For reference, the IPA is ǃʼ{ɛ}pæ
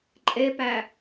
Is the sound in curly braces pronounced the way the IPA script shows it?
no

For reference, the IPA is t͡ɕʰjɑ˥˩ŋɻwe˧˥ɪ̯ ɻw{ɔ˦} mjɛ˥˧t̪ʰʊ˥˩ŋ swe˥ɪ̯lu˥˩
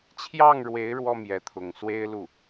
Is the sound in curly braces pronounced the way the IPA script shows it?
no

